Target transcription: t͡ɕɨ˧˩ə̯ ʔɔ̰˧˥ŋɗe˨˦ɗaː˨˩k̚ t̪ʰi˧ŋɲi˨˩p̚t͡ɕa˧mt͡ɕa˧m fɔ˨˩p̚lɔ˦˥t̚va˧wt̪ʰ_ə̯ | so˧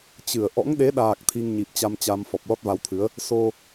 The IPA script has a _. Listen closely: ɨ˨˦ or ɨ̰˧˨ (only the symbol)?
ɨ˨˦